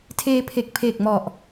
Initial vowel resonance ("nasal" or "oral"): oral